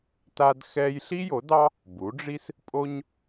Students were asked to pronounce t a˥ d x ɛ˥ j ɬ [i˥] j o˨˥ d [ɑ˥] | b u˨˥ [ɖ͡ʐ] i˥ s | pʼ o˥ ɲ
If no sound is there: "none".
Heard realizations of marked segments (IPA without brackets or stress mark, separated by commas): i˥, ɑ˥, ɖ͡ʐ